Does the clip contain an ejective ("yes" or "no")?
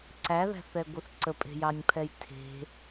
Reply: yes